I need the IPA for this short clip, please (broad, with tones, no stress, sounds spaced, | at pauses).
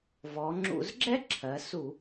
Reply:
v ɔ˩˧ ŋ͡ǁ ṵ˧˩˧ z ɡ͡ǁ ɛ˥ ǁʰ ɜ˩˧ s u˧˩˧